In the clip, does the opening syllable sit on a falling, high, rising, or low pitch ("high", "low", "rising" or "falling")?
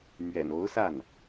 low